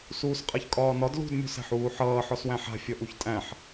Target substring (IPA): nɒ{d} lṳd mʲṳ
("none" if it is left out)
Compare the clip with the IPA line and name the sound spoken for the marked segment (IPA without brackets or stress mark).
d